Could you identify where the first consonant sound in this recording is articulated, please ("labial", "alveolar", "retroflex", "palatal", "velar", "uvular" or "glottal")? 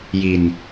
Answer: palatal